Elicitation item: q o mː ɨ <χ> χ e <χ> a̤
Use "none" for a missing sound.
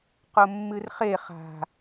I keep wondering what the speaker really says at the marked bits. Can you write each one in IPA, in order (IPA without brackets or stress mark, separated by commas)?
r, χ